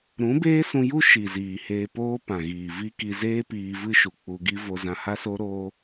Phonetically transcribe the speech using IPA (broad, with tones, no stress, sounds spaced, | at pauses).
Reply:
ɾ ũ˨˦ b eː˦ s ũ˧ j u˦ ʃ i˨ z iː˨ h eː˧ p oː˦ p ã˨ ɣ iː˨ v i˦ k i˧ z eː˦ p iː˧ v ɨ˦ ʃ u˨ k͡p u˧ ɡ i˦ v o˧ z ã˧ h a˦ s o˦ ɾ oː˦